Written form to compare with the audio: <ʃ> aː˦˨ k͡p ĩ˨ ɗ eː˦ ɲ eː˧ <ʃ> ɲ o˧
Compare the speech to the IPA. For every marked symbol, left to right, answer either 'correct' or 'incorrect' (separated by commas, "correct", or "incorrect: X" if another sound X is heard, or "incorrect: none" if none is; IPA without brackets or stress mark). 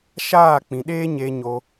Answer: correct, incorrect: none